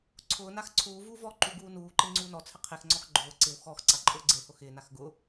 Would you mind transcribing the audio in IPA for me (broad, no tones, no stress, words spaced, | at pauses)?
ǀʰʊːnax ǀʰuːvuː vɔ ǃuɡuːnuːǃe ŋ͡ǀuːnɔt͡sʰɪ qʰexŋ͡ǀɔx ɡ͡ǃʊː ǀɪw xɔx ǀaǃʼʊːɡ͡ǀehʊ xɪːnax ɡʊ